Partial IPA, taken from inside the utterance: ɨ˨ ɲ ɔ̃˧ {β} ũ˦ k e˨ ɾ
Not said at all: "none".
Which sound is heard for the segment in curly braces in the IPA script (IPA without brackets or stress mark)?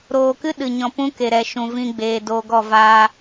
p